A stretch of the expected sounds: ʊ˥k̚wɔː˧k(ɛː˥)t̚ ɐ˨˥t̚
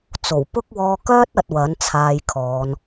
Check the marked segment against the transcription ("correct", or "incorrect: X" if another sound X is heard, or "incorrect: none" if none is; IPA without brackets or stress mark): incorrect: œː˥